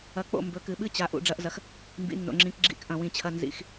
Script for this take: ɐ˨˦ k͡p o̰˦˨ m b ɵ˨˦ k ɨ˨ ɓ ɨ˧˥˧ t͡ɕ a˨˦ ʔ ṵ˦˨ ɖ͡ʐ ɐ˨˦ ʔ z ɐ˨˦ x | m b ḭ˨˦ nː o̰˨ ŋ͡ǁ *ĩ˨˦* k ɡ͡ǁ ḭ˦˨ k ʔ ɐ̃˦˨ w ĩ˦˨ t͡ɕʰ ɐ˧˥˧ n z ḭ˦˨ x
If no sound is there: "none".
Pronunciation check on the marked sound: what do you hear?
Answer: ĩ˨˦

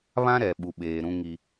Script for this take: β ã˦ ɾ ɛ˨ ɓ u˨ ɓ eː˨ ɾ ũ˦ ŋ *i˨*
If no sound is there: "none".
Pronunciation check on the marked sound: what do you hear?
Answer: i˦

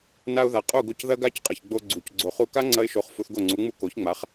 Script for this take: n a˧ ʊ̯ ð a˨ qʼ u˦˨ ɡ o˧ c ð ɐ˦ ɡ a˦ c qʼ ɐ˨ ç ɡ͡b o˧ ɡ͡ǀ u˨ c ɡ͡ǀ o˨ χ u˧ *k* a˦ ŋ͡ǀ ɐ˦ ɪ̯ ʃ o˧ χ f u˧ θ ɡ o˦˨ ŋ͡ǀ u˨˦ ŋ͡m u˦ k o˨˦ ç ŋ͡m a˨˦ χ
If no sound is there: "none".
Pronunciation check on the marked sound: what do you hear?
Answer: k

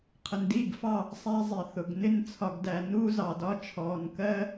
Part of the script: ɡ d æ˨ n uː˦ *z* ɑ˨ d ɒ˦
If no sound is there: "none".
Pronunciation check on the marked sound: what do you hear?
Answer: z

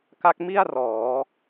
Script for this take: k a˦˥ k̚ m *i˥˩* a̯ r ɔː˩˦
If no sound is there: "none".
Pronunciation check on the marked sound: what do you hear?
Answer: i˥˩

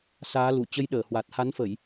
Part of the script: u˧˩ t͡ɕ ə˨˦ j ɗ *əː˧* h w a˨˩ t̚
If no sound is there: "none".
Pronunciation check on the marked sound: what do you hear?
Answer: əː˧˩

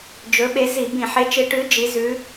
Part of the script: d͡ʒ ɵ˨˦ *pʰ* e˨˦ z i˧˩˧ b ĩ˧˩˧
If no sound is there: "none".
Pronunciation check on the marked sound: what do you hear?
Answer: ɓ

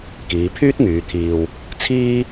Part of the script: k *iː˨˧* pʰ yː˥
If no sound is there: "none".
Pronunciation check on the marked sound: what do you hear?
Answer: iː˨˧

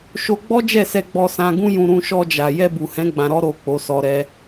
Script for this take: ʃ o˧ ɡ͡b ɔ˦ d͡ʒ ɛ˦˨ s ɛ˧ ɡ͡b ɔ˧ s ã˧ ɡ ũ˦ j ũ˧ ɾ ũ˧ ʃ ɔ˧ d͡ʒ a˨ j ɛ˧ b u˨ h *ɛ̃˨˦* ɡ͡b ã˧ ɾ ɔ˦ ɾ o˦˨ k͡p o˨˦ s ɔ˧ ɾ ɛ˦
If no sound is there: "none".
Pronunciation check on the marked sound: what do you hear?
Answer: ɛ̃˨˦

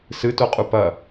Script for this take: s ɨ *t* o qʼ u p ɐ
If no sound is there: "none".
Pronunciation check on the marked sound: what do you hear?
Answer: t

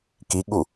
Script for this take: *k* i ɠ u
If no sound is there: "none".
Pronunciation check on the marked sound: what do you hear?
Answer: k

